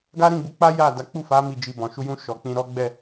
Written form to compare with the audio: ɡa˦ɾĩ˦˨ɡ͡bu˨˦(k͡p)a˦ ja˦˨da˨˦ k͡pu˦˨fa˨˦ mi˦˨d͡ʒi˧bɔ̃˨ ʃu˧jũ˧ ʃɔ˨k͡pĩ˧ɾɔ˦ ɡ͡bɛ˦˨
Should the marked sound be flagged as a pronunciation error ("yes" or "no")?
no